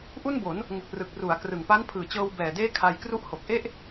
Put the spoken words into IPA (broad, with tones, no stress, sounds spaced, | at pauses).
ʔ u˥˩ n b o˩˦ n | ŋ u˨˩ k̚ r ɯ˨˩ k̚ r u˩˦ a̯ k r ɯ˨˩ ŋ p a˦˥ n pʰ ɯː˨˩ t͡ɕ ɤː˧ w b ɛː˨˩ d eː˥˩ kʰ a˧ j k r u˦˥ ʔ h o˨˩ k̚ ʔ e˥˩ ʔ